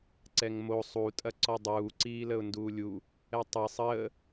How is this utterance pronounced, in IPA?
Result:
ǀɛŋmo sˤutʼɐ ǀɔdˤuː ǀiːləʊ̯nduːlʲu | ɛtˤɛsˤ əː

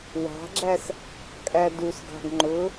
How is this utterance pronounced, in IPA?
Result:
wɑ̤ɡ͡ǁæs | kʼædusɡɑ̤ɡ ŋ͡ǃʊ

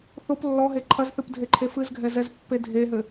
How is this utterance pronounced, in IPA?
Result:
θop lːɔɦe ǃʰɐzθɨp dʱeǃʰefɨzɡʱɛ zɛzpːedʱeɦɘ

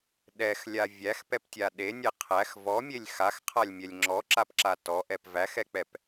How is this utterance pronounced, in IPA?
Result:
ɗɛxlʲa vʲæxpɛptʲa ɗenʲɛ qʰæx vɔmʲelʲ xaxqʰalʲmʲɛlʲ ŋ͡ǁɔǁapǁa tɔʔɛp væxɛk͡pɛp

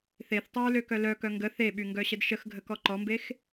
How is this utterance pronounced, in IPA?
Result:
θeθtˤøɹløkœ lœkœ ŋɡə θeɓyŋɡœɕəd ʃəxɡʱəkɔ ǃɔmbex

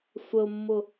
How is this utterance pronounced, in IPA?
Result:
sʷəʊ̯mːʊ

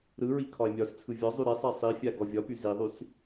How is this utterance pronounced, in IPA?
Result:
ɾɯɹi kʰɒe̯mʲɒst͡sʰɯ vʲɒzˤy ɾesˤɛ sˤifʲa ɡɔvʲɒpy ziðˤys

